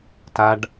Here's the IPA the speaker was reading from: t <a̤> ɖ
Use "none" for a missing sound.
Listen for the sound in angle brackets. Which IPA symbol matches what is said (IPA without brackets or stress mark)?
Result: a